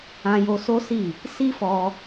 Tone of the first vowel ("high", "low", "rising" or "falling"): high